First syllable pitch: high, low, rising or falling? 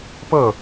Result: falling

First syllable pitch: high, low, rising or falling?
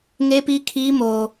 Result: high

